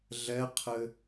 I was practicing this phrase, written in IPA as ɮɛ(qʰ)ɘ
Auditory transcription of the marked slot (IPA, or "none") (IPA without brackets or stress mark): qʰ